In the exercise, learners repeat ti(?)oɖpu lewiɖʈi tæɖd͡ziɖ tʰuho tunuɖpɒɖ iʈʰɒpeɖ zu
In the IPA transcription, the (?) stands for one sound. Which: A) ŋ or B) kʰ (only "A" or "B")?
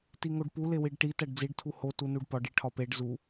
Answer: A